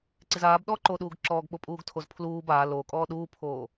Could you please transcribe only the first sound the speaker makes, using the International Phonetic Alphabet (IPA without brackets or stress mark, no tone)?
ǀ